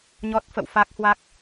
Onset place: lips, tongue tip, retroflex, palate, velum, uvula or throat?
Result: palate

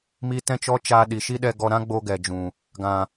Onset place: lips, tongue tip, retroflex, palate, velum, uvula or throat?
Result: lips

